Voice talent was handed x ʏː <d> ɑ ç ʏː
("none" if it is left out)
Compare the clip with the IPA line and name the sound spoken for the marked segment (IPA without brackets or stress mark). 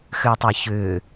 tˤ